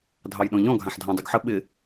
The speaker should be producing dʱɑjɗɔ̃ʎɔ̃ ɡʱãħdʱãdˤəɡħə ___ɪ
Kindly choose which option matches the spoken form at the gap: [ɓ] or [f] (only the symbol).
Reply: ɓ